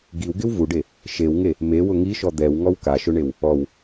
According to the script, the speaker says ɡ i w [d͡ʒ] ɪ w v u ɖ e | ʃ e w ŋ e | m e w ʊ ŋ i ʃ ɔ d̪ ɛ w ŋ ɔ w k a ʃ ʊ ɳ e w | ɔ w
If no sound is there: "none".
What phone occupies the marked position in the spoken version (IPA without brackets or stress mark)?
ɡ